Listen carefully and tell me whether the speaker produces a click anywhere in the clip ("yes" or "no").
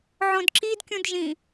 yes